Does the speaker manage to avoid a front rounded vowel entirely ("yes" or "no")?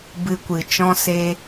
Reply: yes